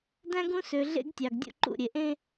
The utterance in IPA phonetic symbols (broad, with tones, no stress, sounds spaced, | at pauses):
d æ̃˦ ɡ ũ˦ s ø˨ ɮ ḛ˦ ɡ tʲ ɑ˨ ɡ dʲ ṵ˦ ǃ ṵ˦˨ ɾʲ e˨ ʔ ẽ˦